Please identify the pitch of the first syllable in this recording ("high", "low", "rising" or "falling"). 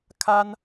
high